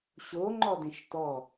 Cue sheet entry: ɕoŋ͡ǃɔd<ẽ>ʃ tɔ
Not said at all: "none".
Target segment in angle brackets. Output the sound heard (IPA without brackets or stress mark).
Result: ẽ